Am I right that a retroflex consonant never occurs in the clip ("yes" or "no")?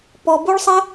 no